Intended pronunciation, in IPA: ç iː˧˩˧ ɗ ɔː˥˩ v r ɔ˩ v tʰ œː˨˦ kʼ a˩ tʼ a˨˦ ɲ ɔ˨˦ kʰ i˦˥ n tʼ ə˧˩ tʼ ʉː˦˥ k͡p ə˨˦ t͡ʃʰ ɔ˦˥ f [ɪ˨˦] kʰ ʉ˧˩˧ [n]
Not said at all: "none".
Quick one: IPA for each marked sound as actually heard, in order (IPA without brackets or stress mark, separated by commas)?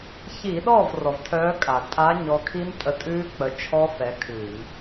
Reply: ɛ˨˦, n